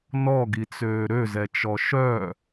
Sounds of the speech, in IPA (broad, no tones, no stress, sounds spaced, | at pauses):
n ɔ ɡ i t͡s øː ɾ ø z ɛ t͡ʃ ɔ ʃ œ